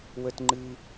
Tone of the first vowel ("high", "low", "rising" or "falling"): high